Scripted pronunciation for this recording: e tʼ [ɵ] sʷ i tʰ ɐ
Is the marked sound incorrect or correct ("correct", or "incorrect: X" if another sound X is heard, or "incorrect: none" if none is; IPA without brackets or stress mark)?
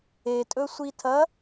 correct